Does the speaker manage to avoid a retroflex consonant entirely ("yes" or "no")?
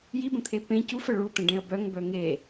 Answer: no